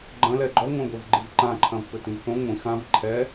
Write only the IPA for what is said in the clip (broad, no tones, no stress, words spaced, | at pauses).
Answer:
ɡ͡ǃɐ̃lɛ ɡ͡ǃɔ ŋʷãɡʷɛvɡ͡ǃivǃã ǃʰɐ̃vpɘtĩvθõ ŋʷĩ xãv ǃʰɛ